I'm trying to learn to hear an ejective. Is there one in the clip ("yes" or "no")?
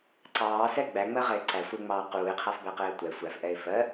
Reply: no